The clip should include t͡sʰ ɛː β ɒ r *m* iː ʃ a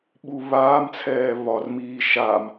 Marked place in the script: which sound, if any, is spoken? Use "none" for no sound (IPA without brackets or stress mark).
m